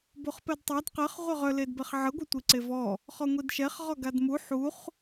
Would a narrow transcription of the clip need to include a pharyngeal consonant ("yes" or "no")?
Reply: yes